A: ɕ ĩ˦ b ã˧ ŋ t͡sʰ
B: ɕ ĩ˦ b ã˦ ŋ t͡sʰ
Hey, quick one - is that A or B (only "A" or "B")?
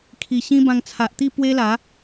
A